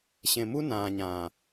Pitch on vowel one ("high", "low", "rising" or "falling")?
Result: low